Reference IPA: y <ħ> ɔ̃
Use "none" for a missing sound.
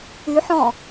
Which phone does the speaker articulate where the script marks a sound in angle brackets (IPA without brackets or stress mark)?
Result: ħ